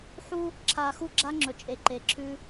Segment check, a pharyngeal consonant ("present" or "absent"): present